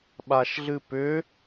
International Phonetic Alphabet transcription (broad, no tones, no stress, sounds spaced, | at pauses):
ɓ a ʃ ɮ ɨ p ʏ